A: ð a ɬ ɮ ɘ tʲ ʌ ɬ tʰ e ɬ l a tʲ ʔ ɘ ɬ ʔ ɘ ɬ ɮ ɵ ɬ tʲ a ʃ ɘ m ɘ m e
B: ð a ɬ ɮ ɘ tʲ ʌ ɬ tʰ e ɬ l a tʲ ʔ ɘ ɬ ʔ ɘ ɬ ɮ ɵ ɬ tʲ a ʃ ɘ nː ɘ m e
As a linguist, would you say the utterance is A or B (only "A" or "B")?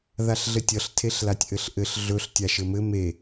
A